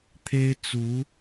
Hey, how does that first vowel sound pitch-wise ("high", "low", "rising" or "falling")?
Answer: high